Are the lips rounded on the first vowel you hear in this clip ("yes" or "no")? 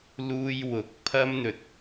yes